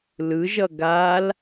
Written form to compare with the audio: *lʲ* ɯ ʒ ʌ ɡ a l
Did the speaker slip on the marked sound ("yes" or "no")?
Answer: yes